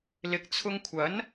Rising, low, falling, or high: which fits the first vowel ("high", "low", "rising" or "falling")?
low